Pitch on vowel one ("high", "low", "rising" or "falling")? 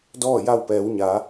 falling